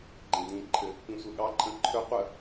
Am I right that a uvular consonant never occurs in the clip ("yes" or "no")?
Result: no